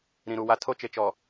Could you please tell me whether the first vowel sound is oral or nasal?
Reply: nasal